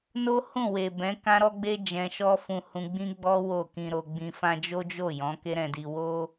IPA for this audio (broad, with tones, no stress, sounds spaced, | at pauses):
n o˦ h ũ˦˨ w e˨ b ɛ̃˨˦ k ã˦ ɾ ɔ˦ ɡ͡b e˦ d͡ʒ ɛ̃˧ ʃ ɔ˦ f ũ˧ h ũ˧ ɡ͡b ĩ˦ ɡ͡b ɔ˦ w o˦˨ k ĩ˧ ɾ o˧ ɡ͡b ĩ˧ f ã˦ d͡ʒ o˦ d͡ʒ o˦˨ j ɔ̃˨˦ k e˦ ɾ ɛ̃˧ d i˧ w o˦